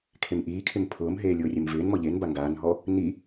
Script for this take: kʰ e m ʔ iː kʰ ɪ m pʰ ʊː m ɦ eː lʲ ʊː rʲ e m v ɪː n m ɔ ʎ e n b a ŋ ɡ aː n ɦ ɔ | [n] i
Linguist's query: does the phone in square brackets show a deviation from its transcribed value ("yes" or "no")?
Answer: no